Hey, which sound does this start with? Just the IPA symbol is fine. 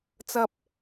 t͡s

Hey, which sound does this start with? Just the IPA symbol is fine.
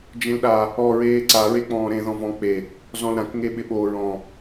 d͡ʒ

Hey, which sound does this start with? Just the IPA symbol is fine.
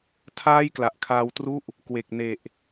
tʰ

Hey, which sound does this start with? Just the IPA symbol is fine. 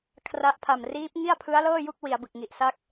kʰ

